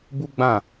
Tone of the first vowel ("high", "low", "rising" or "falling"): high